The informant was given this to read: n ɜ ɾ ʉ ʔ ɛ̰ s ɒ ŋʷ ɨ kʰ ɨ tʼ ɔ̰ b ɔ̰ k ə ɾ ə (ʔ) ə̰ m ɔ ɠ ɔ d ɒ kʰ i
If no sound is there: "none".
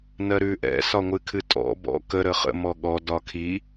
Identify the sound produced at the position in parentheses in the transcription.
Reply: χ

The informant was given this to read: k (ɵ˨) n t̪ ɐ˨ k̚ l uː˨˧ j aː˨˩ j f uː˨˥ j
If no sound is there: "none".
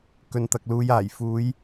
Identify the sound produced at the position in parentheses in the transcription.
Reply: ɵ˨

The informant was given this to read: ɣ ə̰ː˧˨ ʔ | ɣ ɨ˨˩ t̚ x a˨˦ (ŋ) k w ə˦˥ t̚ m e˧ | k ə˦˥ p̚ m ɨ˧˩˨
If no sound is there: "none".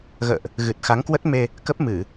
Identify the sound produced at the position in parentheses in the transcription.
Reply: ŋ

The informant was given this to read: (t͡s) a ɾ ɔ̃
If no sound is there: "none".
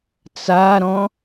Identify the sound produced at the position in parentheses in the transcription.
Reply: t͡s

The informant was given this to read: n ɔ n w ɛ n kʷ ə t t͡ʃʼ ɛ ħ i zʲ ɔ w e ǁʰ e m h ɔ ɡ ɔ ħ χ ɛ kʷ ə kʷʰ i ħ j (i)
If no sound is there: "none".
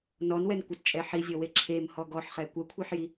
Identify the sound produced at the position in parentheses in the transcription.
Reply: i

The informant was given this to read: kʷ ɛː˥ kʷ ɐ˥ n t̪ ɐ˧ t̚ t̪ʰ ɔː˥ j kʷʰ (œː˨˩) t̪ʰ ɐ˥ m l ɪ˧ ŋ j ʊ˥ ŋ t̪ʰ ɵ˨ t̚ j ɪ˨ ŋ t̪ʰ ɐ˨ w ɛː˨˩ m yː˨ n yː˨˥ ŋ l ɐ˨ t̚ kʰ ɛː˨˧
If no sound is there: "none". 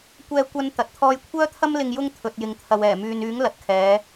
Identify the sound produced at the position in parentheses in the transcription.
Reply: œː˥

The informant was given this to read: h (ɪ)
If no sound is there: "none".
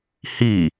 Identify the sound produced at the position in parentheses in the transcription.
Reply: i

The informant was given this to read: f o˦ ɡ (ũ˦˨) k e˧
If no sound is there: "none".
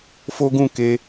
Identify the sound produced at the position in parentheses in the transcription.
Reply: ũ˦˨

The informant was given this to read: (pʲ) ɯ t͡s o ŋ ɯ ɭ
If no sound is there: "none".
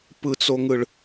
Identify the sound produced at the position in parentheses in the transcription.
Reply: p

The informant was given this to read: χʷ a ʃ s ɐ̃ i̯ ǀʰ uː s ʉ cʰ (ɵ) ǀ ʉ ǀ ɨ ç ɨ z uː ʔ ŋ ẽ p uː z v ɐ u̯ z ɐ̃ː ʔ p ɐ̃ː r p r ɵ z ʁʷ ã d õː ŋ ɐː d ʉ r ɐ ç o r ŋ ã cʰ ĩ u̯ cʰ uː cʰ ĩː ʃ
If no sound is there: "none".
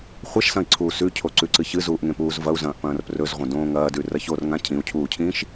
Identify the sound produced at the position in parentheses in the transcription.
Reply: o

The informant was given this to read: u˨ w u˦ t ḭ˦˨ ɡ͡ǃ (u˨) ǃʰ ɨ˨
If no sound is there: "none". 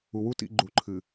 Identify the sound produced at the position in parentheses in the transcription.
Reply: u˨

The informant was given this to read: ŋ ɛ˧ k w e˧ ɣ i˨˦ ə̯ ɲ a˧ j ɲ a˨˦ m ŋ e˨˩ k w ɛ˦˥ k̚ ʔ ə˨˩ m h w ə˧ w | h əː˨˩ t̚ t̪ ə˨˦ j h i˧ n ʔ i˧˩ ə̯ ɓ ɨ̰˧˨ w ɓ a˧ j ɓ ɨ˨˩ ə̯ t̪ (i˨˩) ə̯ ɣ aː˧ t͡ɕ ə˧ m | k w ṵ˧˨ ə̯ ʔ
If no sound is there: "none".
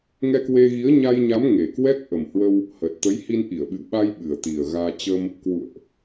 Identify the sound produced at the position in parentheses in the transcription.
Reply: i˨˩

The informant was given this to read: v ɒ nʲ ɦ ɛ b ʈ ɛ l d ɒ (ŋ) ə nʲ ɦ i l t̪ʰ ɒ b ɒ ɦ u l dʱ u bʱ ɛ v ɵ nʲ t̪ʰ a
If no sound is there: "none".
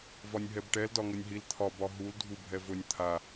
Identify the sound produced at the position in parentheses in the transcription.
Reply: ŋ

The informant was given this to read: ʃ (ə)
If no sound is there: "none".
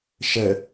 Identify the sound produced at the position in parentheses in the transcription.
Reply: ə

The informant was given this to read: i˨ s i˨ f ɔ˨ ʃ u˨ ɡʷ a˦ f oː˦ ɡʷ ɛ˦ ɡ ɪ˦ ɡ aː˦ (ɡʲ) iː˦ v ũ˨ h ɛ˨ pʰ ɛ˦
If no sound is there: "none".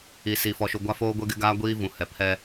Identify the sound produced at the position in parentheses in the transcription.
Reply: ɡʷ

